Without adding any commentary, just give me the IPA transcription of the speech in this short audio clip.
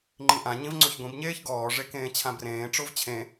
ŋ͡ǃ ĩ ʔ ã ɲ ĩ v ŋ͡ǀ o ç ɡʷ ĩ b ɲ eː ç ɡ ɔː ʐ e k ẽː t͡ɕʰ ã b r ẽː ʈ͡ʂ o v t͡ɕʰ ẽ

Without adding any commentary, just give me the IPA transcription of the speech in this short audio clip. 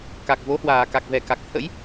k a˨˩ k̚ v o˨˦ h w aː˨˩ k a˨˩ k̚ v ɛ˨˩ k a˨˩ k̚ t̪ʰ ə̰˧˥ j

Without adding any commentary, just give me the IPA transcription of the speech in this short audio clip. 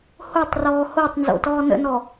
h o tˤ r ɔː h o tˤ n z o̰ t ɔː n ə̰ n ɔ

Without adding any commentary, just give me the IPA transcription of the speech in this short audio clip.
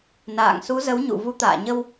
n a̰ː˧˨ ŋ s u˨˦ z ə˨˦ w ɲ ṵ˧˨ v u˨˦ t̪ a̰ː˧˨ ɲ ə˧ w

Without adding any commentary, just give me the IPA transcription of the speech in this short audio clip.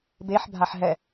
b e ħ bʱ a ħ ɦ ɛ

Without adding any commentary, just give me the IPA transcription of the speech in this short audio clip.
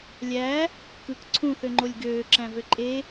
lʲ æ | k ɯ k ǀʰ ũ θ ø ŋ͡ǃ o lʲ ɡ øː ǁ æ̃ v ø ǃʼ e

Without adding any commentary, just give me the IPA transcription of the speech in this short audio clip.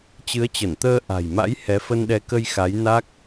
t͡ɕ ɨ˨˦ ə̯ t͡ɕ ə˧˩ n t̪ əː˧ ʔ a̤˨˩ j m a̰˧˥ j h ɛ˨˦ f ə˧ n ɗ ɛ˨˦ k ə˧ j x a˨˦ j n a˦˥ k̚

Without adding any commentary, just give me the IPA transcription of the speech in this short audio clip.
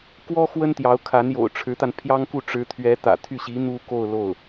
k w ɔ˥ x w ə˥ n t̪ j ɑ˧˥ ʊ̯ kʰ a˧˥ n j o̰˨˩ ʊ̯ ʈ͡ʂʰ ɻ̩˧˥ t̪ a˧ n pʰ j ɑ˥ ŋ k u˥˩ ʈ͡ʂ ɻ̩˧˥ t̪ʰ ɥ ɛ˧˥ t̪ ä̰˨˩ t̪ʰ y˥˩ ɕ i˧˥ n̪ u˥ k o˥˧ ʊ̯ l o˥˩ ʊ̯

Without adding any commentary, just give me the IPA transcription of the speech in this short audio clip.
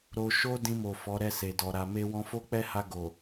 ɾ o˧ ʃ o˦ d ĩ˧ m o˨ f ɔ˨˦ ɾ ɛ˦˨ s e˨ d ɔ˨ ɾ a˨ m e˧ w ɔ̃˧ f o˦ k͡p ɛ˦ h a˧ ɡ o˨

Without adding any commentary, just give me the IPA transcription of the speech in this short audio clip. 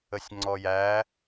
ə sʲ ŋ͡ǀ ɔ j æ

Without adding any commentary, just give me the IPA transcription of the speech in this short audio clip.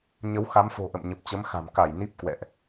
ɲ ə˨˦ w x a˨˦ m f o̤˨˩ ʔ ə̰˧˨ m ɲ ə˨˩ p̚ t͡ɕ ə˨˦ m x a̤˨˩ m k a˧˩ j n i˦˥ p̚ k w ɛ̰˧˨ ʔ

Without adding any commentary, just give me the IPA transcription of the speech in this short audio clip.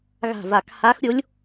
ɣ a̤˨˩ v a˨˩ k h a˧˥ x ɾʲ o˧˥ lʲ

